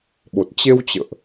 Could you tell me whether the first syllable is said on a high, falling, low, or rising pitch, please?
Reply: low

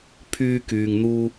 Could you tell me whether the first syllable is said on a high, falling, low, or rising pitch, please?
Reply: high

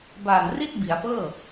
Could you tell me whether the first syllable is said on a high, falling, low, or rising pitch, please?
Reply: low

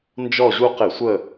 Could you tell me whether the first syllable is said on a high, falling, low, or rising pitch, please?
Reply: falling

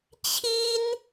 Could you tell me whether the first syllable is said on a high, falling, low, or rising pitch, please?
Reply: high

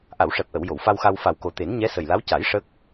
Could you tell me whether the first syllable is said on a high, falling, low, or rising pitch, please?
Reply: low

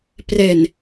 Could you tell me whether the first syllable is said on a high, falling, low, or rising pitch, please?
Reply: low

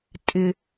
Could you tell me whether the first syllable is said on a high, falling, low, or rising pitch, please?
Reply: low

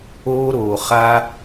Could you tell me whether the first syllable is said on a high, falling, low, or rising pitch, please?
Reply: high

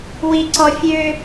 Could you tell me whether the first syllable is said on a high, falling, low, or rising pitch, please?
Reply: low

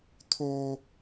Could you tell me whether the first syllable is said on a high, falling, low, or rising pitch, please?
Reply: high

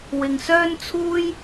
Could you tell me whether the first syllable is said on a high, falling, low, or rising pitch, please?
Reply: low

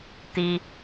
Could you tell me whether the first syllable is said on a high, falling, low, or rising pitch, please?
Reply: high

